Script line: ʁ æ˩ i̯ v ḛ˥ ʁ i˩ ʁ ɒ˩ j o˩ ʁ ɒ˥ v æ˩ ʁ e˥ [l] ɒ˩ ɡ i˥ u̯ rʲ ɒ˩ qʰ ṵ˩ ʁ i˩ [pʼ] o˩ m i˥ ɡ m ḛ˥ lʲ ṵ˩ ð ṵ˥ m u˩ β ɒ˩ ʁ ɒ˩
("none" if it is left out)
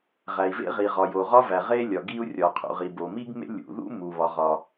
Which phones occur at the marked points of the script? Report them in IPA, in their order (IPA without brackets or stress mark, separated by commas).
lʲ, b